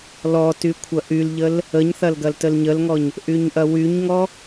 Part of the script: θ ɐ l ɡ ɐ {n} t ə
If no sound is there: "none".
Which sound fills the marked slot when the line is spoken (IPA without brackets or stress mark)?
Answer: l